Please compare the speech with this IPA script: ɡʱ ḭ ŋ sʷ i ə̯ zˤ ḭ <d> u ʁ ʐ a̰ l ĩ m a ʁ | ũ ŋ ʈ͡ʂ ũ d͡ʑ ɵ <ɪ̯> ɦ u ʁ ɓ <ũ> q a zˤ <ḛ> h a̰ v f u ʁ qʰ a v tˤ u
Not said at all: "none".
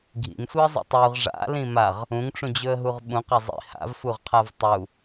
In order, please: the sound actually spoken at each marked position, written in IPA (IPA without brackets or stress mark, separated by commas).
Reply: tˤ, ə̯, ũ, ḭ